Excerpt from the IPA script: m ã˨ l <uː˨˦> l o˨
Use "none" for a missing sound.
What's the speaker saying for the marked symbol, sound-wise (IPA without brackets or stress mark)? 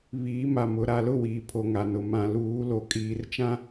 uː˨˦